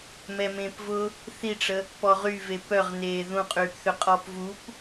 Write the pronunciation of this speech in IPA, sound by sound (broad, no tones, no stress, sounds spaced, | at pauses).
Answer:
m ɛ m ẽː p v ʊ | θ i ʈ͡ʂ ə | p ɔ ʁ y v e p œ ʁ n eː ð ũ qʼ yː p θ ʏ qʼ ɔ p v u p